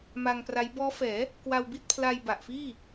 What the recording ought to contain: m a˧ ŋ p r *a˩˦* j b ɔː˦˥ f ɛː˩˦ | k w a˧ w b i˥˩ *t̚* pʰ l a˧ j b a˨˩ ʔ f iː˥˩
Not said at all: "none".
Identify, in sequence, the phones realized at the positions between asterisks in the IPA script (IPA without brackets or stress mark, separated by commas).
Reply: a˦˥, t̚